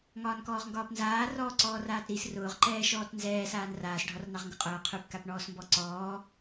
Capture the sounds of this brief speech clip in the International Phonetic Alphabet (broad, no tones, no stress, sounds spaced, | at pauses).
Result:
ŋ ɒː n k ɔː ʁ ŋ ɡ ɒː p n z aː r ɔː ǀ ɔː r aː t ɾ i s r ʊː ʁ ǃ ɛː ʃ ɔː t n z ɛː s aː n r aː s ɖʱ ɒ r n ɑ ʁ ŋ ɡ ʊ qʼ ʊː qʰ ʉ p k a p ɳ ɔː s m b ɔ ǀ ɔː